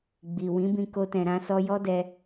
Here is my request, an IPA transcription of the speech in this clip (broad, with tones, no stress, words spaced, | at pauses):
ɡ͡bi˨ wĩ˨˦bĩ˧ ko˧tɛ̃˨ ɾã˧sɔ˧ jɔ˦dɛ˧